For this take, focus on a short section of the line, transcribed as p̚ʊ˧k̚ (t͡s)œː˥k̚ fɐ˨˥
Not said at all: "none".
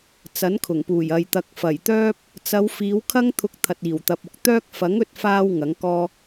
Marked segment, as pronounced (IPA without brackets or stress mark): t̪